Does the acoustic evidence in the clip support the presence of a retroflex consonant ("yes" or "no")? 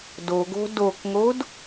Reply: no